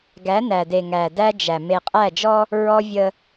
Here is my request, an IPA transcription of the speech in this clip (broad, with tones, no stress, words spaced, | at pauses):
ɡæ˨˦næ˨de˨ŋæ˨ dæ˦ d͡ʒæ˨ me˨qʼæ˦˨d͡ʒɔ˦ | ɹɔ˦ vʲə˦